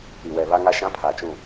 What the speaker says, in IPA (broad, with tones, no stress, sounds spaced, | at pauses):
i˨ w ɛ˨ β a˦ ŋ a˦ ʃ ã˦ pʰ a˨ t͡ʃ ũ˦˨